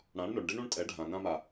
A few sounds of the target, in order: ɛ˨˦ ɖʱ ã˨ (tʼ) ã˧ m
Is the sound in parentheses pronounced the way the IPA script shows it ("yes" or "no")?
no